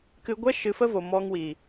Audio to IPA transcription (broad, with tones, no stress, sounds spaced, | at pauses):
k ɨ˧ ɡʷ ɛ˦ ʃ ɨ˧ f ə˦ v o˨ m ɔ˧ ŋ w iː˨